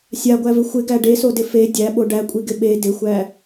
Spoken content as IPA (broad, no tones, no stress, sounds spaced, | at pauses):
sʲ a ɡʷ æ v ɪ xʷ ɪ ɡ æ ɖ e s o d ɪ f e dʲ æ ɓ o ɖ æ kʷʼ i ɡ ɪ ɓ e d ɪ xʷ æ